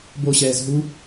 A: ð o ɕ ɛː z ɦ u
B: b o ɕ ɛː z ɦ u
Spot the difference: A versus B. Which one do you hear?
B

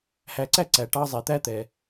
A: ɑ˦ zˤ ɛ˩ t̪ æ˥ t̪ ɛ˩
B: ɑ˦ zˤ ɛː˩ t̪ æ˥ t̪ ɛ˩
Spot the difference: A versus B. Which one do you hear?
A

